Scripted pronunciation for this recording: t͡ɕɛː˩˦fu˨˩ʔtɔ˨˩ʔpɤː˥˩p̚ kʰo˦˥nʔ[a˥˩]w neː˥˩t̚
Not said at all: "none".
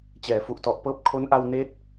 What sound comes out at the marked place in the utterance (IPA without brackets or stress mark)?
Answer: a˧